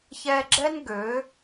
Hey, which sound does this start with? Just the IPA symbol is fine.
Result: ç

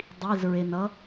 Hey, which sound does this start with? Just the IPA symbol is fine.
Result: dˤ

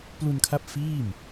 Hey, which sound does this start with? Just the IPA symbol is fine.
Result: p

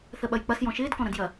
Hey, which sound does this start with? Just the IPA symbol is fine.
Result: θ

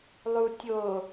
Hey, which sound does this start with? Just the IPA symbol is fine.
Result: lˠ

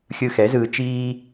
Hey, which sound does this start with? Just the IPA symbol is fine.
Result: xʲ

